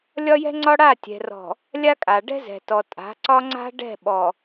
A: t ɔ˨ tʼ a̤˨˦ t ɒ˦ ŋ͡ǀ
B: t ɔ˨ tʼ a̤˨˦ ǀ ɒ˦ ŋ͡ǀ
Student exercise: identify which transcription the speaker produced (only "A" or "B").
B